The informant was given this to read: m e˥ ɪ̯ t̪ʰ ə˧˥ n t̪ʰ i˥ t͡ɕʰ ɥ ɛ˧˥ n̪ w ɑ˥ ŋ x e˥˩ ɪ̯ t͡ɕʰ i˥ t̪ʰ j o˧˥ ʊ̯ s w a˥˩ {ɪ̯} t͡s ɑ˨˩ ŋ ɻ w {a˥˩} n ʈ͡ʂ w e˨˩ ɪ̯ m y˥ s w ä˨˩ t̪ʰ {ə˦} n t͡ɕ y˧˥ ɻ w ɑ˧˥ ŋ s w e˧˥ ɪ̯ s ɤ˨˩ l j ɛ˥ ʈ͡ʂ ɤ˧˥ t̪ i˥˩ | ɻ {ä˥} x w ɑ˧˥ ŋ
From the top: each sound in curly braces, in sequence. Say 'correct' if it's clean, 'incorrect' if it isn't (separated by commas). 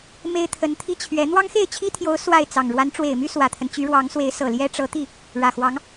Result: correct, incorrect, correct, incorrect